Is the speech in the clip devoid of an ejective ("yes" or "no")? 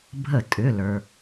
no